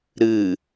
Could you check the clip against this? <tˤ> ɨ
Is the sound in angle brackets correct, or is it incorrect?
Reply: incorrect